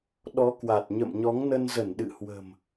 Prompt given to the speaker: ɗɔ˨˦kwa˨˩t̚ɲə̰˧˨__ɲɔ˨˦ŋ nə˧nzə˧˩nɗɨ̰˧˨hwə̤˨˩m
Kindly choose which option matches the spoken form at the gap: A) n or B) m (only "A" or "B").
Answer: B